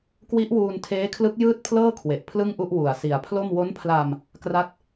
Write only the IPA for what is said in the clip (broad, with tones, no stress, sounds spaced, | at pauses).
k w i˦˥ ʔ w uː˧ n tʰ eː˦˥ kʰ l ɯ˦˥ k̚ j ɯː˥˩ t̚ pʰ l ɤː˥˩ kʰ w e˨˩ ʔ pʰ l ɯ˥˩ ŋ ʔ u˥˩ ʔ w u˨˩ a̯ s i˨˩ a̯ pʰ l o˥˩ m w o˦˥ n pʰ l a˧ m | k r a˥˩ t̚